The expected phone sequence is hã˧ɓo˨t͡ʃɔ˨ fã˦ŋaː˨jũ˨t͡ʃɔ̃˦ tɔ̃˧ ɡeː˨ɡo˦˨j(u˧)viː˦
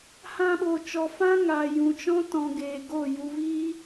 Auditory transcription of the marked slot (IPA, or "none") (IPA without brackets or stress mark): u˧